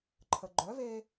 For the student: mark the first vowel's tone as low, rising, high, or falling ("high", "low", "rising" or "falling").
low